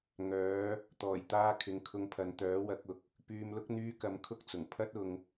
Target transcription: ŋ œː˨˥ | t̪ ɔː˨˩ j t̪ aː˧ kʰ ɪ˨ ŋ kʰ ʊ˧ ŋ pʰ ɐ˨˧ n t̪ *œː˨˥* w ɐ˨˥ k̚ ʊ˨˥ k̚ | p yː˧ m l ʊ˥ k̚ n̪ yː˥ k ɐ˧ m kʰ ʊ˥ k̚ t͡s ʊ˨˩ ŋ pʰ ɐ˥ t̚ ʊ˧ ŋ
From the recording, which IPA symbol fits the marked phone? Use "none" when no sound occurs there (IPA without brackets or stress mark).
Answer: œː˨˥